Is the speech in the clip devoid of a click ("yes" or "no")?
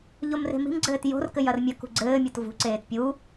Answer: no